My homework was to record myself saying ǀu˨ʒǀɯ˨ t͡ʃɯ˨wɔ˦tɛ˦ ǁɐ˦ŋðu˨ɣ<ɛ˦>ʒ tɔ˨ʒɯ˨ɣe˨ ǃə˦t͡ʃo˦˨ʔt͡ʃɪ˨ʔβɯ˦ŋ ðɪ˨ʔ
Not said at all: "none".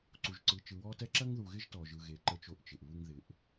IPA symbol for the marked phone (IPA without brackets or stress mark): ɪ˦